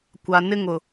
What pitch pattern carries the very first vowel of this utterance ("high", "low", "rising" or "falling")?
low